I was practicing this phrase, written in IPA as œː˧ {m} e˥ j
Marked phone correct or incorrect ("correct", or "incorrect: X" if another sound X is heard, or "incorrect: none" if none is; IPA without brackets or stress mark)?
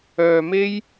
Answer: correct